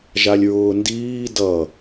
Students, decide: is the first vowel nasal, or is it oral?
oral